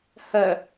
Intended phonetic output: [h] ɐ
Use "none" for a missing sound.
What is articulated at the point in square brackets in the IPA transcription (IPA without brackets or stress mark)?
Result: h